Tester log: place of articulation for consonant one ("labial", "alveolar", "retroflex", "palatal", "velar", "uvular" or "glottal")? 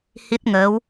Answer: glottal